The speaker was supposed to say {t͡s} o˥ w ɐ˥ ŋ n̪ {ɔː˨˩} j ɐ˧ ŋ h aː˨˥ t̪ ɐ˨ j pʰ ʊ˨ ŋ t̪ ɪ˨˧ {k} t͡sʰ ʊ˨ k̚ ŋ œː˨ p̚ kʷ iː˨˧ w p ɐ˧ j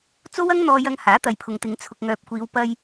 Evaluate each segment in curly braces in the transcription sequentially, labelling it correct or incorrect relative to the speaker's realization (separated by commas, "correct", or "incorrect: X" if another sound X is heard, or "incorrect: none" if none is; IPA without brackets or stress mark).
correct, incorrect: ɔː˧, incorrect: ŋ